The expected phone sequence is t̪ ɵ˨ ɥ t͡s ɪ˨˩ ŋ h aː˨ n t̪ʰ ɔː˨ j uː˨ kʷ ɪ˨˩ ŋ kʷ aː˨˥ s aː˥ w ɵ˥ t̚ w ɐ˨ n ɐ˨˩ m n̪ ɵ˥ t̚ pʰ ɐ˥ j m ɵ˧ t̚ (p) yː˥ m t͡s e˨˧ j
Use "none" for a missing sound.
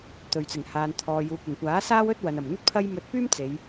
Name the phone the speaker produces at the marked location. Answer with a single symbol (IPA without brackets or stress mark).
p